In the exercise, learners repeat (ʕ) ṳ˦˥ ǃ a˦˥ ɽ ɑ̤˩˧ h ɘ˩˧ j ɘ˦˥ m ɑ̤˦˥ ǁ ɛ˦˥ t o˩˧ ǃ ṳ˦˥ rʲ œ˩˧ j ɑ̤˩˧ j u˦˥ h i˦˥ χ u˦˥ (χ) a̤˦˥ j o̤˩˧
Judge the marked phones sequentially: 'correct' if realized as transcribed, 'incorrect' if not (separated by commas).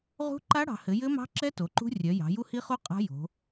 incorrect, incorrect